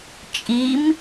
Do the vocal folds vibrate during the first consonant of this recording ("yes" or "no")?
no